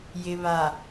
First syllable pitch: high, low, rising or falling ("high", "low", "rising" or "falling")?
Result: low